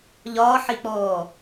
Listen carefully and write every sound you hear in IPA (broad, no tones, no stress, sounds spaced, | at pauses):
ʎ ɒː ħ i k͡p ɔː